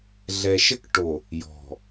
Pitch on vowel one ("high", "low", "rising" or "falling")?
low